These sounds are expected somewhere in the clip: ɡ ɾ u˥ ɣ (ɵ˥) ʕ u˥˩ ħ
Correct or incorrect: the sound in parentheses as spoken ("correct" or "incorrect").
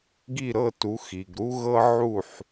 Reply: incorrect